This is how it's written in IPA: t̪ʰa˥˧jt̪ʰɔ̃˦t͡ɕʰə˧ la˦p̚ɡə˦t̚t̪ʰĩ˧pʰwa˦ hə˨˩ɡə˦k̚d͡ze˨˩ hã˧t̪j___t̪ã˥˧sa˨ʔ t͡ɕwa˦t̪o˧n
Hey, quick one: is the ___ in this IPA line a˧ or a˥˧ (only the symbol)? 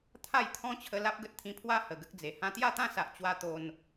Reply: a˥˧